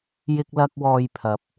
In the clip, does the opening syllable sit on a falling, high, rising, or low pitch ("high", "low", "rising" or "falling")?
high